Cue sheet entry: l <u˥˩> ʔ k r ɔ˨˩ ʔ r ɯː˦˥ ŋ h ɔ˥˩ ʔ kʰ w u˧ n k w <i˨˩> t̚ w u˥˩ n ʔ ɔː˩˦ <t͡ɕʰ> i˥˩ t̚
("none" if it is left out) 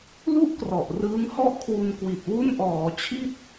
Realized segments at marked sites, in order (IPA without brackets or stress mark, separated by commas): u˥˩, i˨˩, t͡ɕʰ